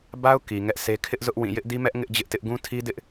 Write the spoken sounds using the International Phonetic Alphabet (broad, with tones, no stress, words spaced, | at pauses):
ba˦ʊ̯ ki˨ŋɛ˦ʔse˦ kʰɪ˦ʔzʊ˦ʔ wĩ˦˨ jɪ˦ʔdi˦mɛ˦ʔ ŋɪ˦ʔ d͡ʑɪ˦ʔtɪ˦ʔ ɡũ˦tʰi˦dɪ˦ʔ